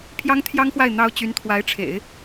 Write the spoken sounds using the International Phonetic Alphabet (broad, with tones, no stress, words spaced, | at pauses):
pʰjɑ˥ŋt̪ʰjɑ˥ŋxwa˥˩ɪ̯ n̪ɑ˥ʊ̯ t͡ɕy˧˥nt̪ʰwa˧˥ɪ̯ʈ͡ʂʰḛ˨˩˦ɪ̯